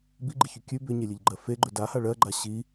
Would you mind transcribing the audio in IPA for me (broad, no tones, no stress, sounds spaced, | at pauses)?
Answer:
b i ɡ͡ǃ i ç ʉ kʲ ʉ b ʏ ɲ e lʲ e ʎ ɡ͡ǃ ɜ f e ɡ͡ǃ ɵ d a h a ɭ ɜ ɡ͡ǃ a ɕ i